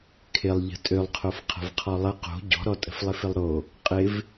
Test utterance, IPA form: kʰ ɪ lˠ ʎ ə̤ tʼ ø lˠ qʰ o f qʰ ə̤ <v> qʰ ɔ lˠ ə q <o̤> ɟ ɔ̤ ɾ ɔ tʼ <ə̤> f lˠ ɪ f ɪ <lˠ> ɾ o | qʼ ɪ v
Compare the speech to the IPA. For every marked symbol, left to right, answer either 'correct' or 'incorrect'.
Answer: correct, correct, correct, correct

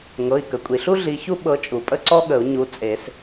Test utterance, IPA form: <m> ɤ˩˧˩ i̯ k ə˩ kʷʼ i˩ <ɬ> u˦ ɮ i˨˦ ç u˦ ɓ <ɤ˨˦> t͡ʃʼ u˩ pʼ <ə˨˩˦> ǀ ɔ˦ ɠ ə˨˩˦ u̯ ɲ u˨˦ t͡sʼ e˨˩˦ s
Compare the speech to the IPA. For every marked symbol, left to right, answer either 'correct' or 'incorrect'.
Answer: incorrect: ŋ, correct, correct, incorrect: ə˦

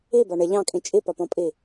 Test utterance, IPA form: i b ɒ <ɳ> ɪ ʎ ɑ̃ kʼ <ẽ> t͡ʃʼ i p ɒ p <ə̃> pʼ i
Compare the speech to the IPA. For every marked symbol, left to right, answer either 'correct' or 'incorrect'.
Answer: correct, incorrect: ĩ, incorrect: ɔ̃

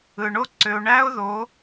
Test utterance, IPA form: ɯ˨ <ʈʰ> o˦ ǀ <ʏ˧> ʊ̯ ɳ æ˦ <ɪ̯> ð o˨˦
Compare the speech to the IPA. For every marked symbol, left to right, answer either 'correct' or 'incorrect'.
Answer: incorrect: ɳ, correct, incorrect: ʊ̯

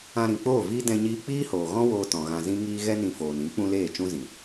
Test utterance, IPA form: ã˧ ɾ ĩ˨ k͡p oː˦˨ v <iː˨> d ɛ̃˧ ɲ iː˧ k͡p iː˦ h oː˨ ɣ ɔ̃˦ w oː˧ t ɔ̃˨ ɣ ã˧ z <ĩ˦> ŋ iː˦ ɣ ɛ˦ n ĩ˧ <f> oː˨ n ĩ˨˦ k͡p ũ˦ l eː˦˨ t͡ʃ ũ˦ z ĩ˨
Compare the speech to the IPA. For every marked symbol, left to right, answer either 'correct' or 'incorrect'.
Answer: incorrect: iː˦, correct, correct

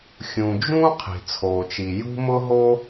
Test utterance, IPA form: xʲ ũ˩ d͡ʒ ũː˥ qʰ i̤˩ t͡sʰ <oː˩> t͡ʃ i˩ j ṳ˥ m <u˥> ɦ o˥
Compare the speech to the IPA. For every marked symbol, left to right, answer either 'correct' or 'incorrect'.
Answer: correct, incorrect: ʊ˥

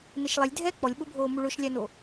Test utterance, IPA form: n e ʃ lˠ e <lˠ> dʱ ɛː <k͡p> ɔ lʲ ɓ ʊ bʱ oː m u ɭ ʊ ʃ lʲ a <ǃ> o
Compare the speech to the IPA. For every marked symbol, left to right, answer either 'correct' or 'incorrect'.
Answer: incorrect: lʲ, correct, incorrect: n

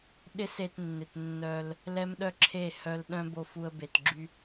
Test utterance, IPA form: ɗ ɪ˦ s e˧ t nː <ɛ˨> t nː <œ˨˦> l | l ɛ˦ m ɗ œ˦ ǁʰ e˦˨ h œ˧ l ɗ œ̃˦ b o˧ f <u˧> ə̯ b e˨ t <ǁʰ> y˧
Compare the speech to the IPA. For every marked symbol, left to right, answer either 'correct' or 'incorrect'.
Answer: incorrect: ɪ˨, incorrect: œ˧, correct, incorrect: ɡ͡ǁ

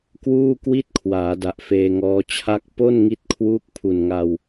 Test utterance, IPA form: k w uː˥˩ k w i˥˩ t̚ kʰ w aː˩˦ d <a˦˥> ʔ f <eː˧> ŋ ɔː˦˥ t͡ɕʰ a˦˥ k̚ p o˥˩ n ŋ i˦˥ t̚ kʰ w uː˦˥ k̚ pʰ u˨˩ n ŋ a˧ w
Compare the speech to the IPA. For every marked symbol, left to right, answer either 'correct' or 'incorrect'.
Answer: incorrect: a˨˩, correct

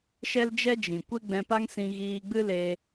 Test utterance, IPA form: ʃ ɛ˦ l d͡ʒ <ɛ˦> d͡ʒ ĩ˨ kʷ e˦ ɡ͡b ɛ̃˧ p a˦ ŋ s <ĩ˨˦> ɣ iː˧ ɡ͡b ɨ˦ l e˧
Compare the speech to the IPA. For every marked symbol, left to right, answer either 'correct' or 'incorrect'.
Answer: correct, incorrect: ĩ˧

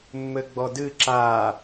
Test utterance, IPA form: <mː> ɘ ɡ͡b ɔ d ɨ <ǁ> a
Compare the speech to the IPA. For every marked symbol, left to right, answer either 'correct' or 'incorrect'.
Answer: correct, correct

